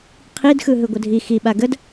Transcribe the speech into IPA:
qʰidxɯ ɦɯɡʷədʱi xiɓa ɡəd

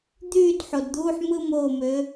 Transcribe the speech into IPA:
d̪yː˥˨dħo˩dd̪uː˧˥˧ħ mɯ˥˨mo˧˩mø˩˧

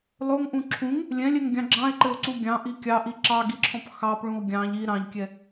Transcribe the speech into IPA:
lˠoŋʔũ ǁʰũŋ | lʲɛ̃lʲɛŋɡʲɑ̃ ɡ͡ǁɑ̃e̯ǃɘo̯ǀu ɡʲɑ̃ʔi kʲɑʔi ǁɑɡiǁʰɔ̃p xɑpɭũo̯ ɡʲɑ̃ʎ i ɾɑ̃ʎkʲɛ

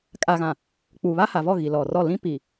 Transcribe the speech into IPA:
kʼaː˨ɣã˨ | k͡puː˨βaː˦ha˨vɔ˦˨ ɣi˨lɔ˨rɔ˦˨ lĩ˦ pi˨

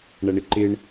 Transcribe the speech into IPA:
ɳɐɳɪǃɪɳ

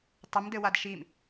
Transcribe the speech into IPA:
tˤɘmdɘwad ʃim

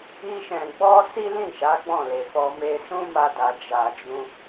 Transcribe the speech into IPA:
i˦ʃɛ̃˧ ɡ͡bɔ˦ si˦lĩ˦˨ʃa˨˦ ɡ͡bɔ̃˦˨le˨fɔ˧ me˧sũ˦ma˧da˨ d͡ʒa˨d͡ʒũ˧

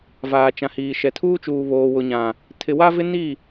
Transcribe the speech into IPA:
vaː˨t͡ʃã˨hiː˨ ʃɛ˨tʰuː˦t͡ʃuː˨ βoː˨wʊ˨ɲã˨ | tʰɪ˨wa˦vɪ˦ ni˦˨

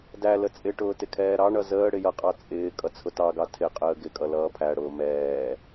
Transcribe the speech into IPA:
dælə t͡sʼɪʈʊː tɪkʰɛːɾɑɳʌ zəː ɽɪjʌqʼɑ t͡sʼɪː kʼʌt͡sʰʊtɑɡɑ tʰɪqʼəː ɡɪkʼʌ lʌːpʰæɽʊː mɛː

